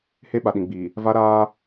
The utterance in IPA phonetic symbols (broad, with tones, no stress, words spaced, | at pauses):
he˦ɓa˨ɗĩ˨ɡ͡biː˨ | va˦ɾaː˦